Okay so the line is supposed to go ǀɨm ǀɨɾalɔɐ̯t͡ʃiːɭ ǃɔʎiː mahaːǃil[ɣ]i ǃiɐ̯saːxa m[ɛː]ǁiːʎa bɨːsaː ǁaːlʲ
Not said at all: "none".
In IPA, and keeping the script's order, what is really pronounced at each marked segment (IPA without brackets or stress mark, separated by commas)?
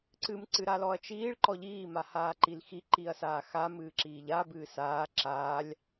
x, ɨː